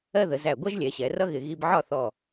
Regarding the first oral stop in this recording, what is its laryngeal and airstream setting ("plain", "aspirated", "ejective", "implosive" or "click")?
plain